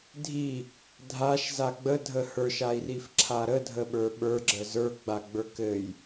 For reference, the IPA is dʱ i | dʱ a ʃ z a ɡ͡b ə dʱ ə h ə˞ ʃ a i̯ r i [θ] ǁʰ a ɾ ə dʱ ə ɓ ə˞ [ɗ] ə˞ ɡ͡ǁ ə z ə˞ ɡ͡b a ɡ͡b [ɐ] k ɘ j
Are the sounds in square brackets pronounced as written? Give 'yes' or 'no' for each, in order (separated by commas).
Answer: no, no, no